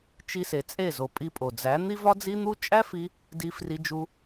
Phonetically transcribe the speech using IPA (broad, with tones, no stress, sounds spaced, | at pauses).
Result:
t͡ʃ i˧ s e˨ t͡sʼ e˦˨ z o˨ pʼ i˧ pʼ o˨ d͡z æ˨˦ n̪ i˦ v ɒ˦ d͡z i˦ n̪ u˦ t͡ʃʼ æ˦ f i˧ | d i˧ f r i˧ d͡ʒ u˧